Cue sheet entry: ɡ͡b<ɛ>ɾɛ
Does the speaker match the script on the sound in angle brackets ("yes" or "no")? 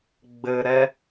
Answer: no